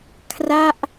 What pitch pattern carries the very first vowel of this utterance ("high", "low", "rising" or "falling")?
falling